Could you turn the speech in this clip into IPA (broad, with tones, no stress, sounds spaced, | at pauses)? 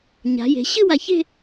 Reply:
ɲ a̤˩˧ j e̤˩˧ ɕ ɨ˥˧ w a˧˩ ç e̤˥˧